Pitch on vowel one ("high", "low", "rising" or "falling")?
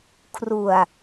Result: low